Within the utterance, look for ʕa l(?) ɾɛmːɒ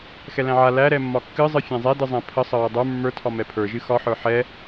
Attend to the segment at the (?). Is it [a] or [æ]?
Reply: æ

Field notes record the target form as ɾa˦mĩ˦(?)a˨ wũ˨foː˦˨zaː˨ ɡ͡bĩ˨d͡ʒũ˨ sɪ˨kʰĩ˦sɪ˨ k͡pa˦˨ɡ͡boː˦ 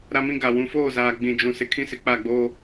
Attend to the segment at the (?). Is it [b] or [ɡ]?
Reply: ɡ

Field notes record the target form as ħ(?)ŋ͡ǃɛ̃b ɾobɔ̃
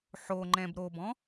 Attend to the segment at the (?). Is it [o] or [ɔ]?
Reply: o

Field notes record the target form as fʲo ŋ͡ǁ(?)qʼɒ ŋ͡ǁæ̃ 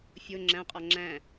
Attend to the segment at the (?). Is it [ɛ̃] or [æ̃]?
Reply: æ̃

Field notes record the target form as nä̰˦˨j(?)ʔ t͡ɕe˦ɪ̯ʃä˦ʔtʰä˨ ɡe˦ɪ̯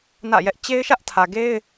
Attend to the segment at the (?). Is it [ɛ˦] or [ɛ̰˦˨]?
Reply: ɛ˦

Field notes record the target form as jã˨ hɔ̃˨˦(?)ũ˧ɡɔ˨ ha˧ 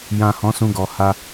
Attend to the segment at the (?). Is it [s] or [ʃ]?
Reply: s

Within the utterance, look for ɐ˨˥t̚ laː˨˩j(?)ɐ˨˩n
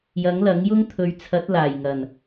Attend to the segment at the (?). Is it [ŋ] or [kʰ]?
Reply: ŋ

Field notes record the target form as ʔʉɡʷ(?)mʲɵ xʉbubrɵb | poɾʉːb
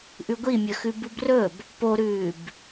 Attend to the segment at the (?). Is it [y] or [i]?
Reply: i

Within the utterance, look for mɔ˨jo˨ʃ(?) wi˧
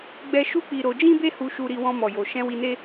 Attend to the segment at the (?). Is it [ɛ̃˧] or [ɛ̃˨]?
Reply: ɛ̃˧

